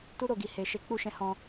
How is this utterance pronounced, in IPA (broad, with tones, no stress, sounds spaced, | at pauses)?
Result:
t u˦ ɾ o˦˨ ɡ i˨ h e˨ ʃ e˨˦ k͡p u˧ ʃ ɛ̃˧ h ɔ̃˧